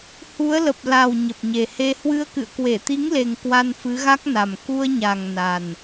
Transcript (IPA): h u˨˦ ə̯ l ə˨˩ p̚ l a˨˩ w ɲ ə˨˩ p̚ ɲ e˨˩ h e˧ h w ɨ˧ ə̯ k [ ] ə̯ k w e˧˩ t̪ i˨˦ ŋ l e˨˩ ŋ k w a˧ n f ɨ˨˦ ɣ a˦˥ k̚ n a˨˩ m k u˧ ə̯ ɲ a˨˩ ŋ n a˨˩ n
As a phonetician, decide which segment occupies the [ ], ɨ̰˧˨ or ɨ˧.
ɨ̰˧˨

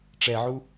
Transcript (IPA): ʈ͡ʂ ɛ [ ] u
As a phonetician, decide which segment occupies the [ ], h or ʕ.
ʕ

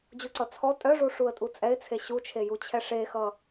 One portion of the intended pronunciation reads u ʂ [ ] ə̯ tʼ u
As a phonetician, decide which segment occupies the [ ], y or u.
u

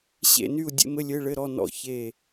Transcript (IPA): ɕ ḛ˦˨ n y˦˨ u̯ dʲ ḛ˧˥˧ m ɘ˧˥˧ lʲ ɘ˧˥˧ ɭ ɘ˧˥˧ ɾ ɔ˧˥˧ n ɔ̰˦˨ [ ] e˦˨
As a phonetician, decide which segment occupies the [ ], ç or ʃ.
ç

